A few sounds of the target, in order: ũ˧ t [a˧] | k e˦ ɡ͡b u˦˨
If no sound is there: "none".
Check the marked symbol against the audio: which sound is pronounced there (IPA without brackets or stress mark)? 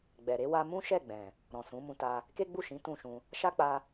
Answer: a˧